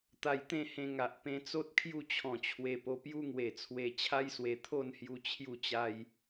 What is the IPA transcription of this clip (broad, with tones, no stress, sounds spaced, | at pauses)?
t̪ a˧ j t̪ ẽ˥˧ h ẽ˧ ŋ a˨ ʔ p ẽ˧ t͡s o˦ t̚ kʰ j u˥˧ t͡ɕʰ ɔ̃˨˩ t͡ɕʰ w e˧ p o˧ p j u˦ ŋ w e˨˩ t͡sʰ w e˧ t͡ɕʰ a˦ j s w e˧ t̪ʰ o˥˧ n h j u˧ t͡ɕʰ j u˥˧ t͡ɕ a˦ j